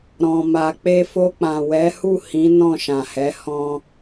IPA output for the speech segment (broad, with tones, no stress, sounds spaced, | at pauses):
ɾ ɔ̃˧ m a˧ k͡p e˧ f o˧ k͡p ã˨ w ɛ˨˦ h u˦˨ h ĩ˨˦ n ɔ̃˦˨ ʃ ã˨ h ɛ˨˦ h ɔ̃˧